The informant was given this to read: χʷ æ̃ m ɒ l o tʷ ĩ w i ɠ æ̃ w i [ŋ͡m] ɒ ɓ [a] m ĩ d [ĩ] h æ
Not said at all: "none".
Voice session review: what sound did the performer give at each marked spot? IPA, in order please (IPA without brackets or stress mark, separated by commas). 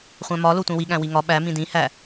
ŋ, æ, ĩ